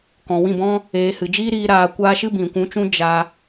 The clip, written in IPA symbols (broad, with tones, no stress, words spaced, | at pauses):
kɔ̃˨wĩ˦˨bɔ̃˦ | eː˧ hɨ˨d͡ʒiː˦ɾiː˧ ɾaː˧kʷaː˦ ʃɨ˦bĩ˨kʷũ˧t͡ʃũ˦ d͡ʒa˧